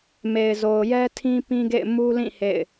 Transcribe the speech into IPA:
m e˨ ɪ̯ z o˨ ʊ̯ j ɛ˦ tʰ ĩ˦ p ĩ˦ ɡ ḛ˦˨ ɪ̯ m u˦ l ĩ˦˨ h ḛ˦˨ ɪ̯

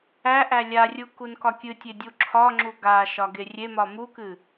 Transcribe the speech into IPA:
æ ʔ æ lʲ a rʲ u k u n k ɒ kʲ ɨ tʲ e dʲ u ǁʰ ɒ ŋ͡ǁ u ɡ a ʃ ɒ ɡ e rʲ e m ɒ m u k ɨ

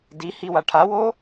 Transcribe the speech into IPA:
d i h i w a ʈʰ a w o

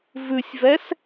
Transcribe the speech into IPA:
v ʉ sʲ v ɛ s

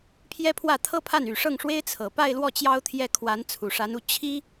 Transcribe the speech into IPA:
pʰ j ɛ˥ pʰ w ä˥˩ t̪ʰ ɤ˥ pʰ a˥˩ n y˨˩ ʂ ɤ˥˩ ŋ ʂ w e˥ ɪ̯ t͡sʰ ɤ˨˩ p a˥˧ ɪ̯ l w ɔ˥˩ t͡ɕ j ɑ˥ ʊ̯ t̪ʰ j ɛ˥˩ kʰ w a˧˥ n t͡sʰ u˨˩ ʂ a˧˥ n u˧˥ t͡ɕʰ i˥

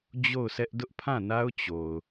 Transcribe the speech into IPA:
d͡ʑ o˦˨ ʊ̯ s ɛ˦ ʔ d ʊ˦ ʔ pʰ ã˦˨ n a˦ ʊ̯ t͡ɕ o˨ ʊ̯

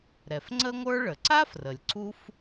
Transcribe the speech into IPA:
ɾ ɛ˩ f ŋ͡ǀ ə˥ ŋʷ ə˞˥ ɭ ə˩ ǀ a˥ f r ə˩ lʲ ǀ u˥ f

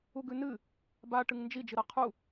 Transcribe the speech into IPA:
u ɡ ʉ n ɨ | b a ʈ ɨ ŋ n d͡ʒ i d͡ʒ ɨ ɾ a qʰ u

